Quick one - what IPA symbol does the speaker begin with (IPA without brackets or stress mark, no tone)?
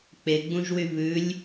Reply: k͡p